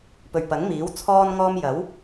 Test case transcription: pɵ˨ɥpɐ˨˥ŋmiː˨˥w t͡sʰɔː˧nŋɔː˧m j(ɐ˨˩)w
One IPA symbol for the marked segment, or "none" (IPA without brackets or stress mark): ɐ˨˥